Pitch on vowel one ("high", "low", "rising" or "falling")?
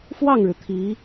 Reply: falling